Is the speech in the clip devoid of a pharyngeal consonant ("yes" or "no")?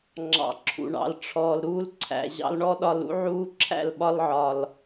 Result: no